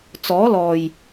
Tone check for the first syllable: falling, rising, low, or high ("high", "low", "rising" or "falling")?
rising